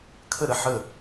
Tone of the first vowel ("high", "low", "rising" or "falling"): falling